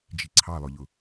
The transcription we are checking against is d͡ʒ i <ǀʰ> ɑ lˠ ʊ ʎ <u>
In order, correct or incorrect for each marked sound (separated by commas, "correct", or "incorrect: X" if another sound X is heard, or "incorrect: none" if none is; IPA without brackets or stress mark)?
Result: correct, incorrect: ʊ